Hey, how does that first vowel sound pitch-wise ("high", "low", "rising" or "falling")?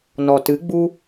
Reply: low